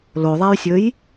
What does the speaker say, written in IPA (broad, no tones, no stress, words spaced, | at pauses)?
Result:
loðˤajsʲɵj